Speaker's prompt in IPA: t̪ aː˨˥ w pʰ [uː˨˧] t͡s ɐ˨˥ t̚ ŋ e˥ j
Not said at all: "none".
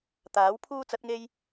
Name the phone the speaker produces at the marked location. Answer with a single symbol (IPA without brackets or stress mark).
uː˥